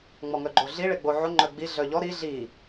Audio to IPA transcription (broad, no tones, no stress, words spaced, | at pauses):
ŋ͡mɔŋœɡ͡ǃoɮi ɭeɡ͡boʕo ŋ͡ǃœɡ͡bi ɮœʎɔ ɾi ɮi